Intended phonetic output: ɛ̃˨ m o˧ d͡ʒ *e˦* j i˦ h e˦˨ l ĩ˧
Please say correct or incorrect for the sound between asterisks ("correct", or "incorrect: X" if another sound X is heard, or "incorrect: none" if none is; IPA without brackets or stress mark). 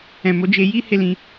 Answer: incorrect: e˧